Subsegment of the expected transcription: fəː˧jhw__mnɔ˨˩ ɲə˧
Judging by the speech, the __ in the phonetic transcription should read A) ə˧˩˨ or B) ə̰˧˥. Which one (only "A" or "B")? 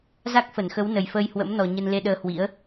B